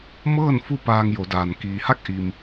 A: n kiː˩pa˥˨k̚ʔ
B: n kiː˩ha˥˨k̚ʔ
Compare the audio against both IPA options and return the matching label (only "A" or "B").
B